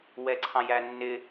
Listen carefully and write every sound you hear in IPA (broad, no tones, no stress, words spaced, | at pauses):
wɛǀʰɑ̃jænːɪ